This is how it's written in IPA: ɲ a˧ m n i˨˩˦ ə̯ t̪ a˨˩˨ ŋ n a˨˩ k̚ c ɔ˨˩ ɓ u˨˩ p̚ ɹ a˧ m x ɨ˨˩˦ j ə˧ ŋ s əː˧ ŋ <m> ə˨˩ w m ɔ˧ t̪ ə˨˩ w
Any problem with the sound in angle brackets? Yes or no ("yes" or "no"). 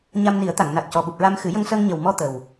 yes